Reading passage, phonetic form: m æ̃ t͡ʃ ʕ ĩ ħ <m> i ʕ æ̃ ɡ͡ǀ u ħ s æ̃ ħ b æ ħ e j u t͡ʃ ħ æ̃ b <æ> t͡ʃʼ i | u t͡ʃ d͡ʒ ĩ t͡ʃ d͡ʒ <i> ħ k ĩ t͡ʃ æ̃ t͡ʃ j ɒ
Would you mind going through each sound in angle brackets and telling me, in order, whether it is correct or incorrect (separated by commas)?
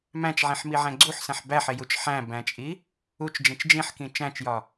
correct, incorrect, incorrect